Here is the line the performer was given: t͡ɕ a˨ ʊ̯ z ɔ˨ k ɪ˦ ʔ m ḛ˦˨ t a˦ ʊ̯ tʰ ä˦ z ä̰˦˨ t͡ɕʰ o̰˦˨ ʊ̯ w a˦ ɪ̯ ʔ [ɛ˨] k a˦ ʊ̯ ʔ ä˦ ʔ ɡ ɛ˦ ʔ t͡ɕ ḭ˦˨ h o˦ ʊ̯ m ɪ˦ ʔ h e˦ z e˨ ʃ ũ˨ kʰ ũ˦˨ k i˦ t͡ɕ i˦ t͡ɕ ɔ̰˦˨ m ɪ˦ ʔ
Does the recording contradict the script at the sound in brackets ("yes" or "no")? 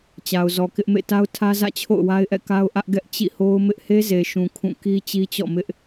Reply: yes